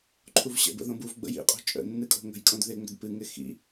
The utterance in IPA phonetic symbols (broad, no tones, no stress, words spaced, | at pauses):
ǃʰuvɕə̰ bə̰ðõbuv ɡ͡bə̰jḭ qʼo̤t͡ʃʼə̰ nːɨkʼo̤ŋə̤j kʼõdðɪ ŋ͡mə̤dpɨ ŋɪxḭ